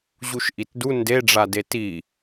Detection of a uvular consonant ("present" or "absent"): absent